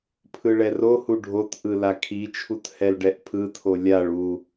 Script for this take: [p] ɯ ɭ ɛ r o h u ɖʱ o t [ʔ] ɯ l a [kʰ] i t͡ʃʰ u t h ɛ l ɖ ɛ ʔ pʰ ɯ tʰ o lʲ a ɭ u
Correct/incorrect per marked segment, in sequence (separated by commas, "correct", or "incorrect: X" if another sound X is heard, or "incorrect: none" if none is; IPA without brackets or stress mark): incorrect: pʰ, correct, correct